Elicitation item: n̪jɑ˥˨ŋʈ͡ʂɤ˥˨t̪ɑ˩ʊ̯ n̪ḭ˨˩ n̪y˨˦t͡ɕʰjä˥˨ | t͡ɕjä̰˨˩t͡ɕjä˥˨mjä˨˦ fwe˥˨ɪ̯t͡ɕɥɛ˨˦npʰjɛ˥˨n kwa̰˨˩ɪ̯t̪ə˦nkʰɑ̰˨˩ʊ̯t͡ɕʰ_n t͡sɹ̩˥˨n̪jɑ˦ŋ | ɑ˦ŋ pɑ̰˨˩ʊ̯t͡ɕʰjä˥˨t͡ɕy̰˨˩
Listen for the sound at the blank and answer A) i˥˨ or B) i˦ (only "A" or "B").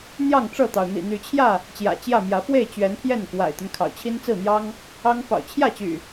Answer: B